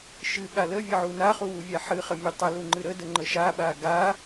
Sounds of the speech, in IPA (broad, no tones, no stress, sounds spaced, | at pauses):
ʃ ɨ ɠ a l ə vʲ ə ʕ u n a χ u w u vʲ a ħ ɨ χ ə mʲ ɨ tˤ ə l u ŋ͡ǃ ɨ ɾ ə d ə ŋ͡ǃ ə ʃ a ɓ a ɡ a